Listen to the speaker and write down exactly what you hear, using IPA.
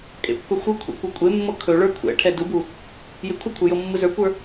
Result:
kʼ ḛ pː ɵ xʷ ɯ kʷʰ ḛ kʷ ɯ kʷʼ e mː ɤ kʰ ɵ ɭ ə˞ kʷʰ ɛ̰ ʈʰ ɛ d u b u | j e kʷʰ ɯ kʷʰ ə˞ j ɤ mː ɯ z ə˞ kʷ ə˞

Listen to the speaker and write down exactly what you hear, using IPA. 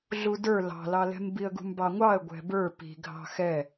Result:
ɮ u d ə˞ l ɑ̤ l ɑ l ɛ̤ m b i ə̯ ɡ ṳ m b ɑ ŋʷ ɑ ə̯ ɡʷ ɛ̤ b ə˞ p i̤ ɡʱ ɑ̤ x ɛ

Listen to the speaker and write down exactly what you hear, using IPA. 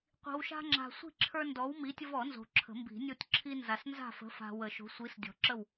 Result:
qʷ i̤˨ w ʃ a̤˦ ŋ͡ǁ a̤˨ sʷ i̤˥˨ ǁʰ ə˞˦ n d ɔ˨˥ w m i˨˥ tʲ ə˦ v ɔ˨˩˦ n z o̤˨ ǁʰ ə̤˨˩˦ m b i̤˨˩˦ nʲ o˦ tʲ ǁʰ i˦ n z a˨ s n z a̤˥˨ f ə̤˨˥ f a̤˨ w ə˨˩˦ ʃ o̤˨˥ sʷ i˨˥ s dʲ ɔ̤˨ ǁ ə˥˨ w

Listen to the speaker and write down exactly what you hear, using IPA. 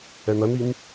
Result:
ɛ n ɐ n i n

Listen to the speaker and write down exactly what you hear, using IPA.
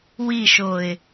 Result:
w i ʃ o ɪ̯

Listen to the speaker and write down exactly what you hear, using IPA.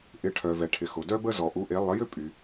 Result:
ʔ ɪ˩˥ ʈʰ œ˩ v ɛ˩ ʈʰ ɪ˩ x ʊ˩ d œ˥ b ə˥ z ɔ˩ ʔ u˩˥ ʔ e˩˥ lˠ ə˩˥ j ʏ˥ pʼ y˩

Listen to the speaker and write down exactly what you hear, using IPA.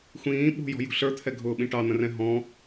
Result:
xʷ ĩː ɓ ṳ j ɔ̤ j ṳ ɬ ə˞ t̪ʰ ɛ ɡʱ ʊː ɓ ĩ ʈ ɑ n̪ ə̃ r ɛ̃ ɦ ɔ̃

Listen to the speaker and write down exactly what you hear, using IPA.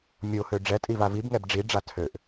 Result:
mʲ o h ø ɖ͡ʐ ɛ tʼ i v a v i b ŋ ɛ b ɖ͡ʐ i ɖ͡ʐ a tʰ ø ʔ

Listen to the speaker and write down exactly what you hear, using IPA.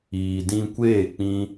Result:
iː˨ d ĩ˧ kʷ eː˦˨ k͡p ĩ˧

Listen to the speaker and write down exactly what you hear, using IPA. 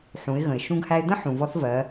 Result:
ħ ũ˩˧ ɪ̯ ɣ ə̃˩ ɪ̯ ʃ ũ˧ ɡ h æ˧ ɪ̯ d̪ ə̃˥ ħ ũ˩ v ɔ˧˥ θ v ɜ˩˧

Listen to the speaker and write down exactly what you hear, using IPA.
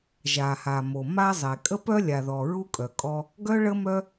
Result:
ʒ a˩ h a˩ m o˩ m a˧ zˤ e˩ kʼ ə˧ p œ˧ lʲ a˩ ð ɔ˩ ɹ u˧ kʼ œ˩ kʼ ɔ˧ | ɡ œ˥ ɭ ə˥ m œ˥

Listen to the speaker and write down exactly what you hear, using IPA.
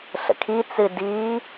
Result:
ɬ ə̰ kʰ i t͡s ɨ d i

